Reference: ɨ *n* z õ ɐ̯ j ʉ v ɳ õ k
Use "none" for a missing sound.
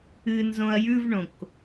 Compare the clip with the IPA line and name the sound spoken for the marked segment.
n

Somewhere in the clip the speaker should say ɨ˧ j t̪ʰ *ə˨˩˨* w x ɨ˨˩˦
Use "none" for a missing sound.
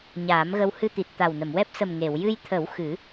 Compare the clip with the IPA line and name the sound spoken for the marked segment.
ə˨˩˦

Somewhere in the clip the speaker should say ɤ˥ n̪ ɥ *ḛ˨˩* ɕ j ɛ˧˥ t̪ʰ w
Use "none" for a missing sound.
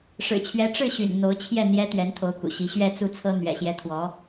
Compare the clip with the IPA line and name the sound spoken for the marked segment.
ɛ̰˨˩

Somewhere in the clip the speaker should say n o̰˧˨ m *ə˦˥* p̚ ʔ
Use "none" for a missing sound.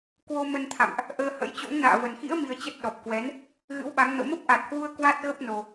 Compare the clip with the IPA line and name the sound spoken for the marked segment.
ə˦˥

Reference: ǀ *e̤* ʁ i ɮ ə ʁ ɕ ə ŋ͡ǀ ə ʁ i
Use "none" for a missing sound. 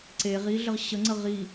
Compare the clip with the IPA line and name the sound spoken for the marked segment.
e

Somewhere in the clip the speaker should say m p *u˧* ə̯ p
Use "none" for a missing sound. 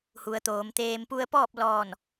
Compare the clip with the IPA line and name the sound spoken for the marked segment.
u˧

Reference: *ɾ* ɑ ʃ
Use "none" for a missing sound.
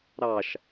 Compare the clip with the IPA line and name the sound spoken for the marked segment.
ɾ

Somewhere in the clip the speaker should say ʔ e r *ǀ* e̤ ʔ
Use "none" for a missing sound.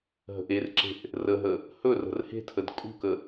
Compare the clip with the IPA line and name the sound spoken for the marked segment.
ǁ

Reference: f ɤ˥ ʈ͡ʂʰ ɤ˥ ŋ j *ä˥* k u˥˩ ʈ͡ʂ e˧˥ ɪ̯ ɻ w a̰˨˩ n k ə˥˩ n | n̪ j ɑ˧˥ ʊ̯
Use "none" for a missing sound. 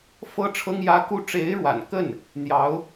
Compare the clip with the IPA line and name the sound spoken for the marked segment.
ä˥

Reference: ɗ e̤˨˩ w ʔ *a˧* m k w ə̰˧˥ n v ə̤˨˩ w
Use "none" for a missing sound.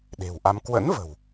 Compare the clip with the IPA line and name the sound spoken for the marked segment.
a˧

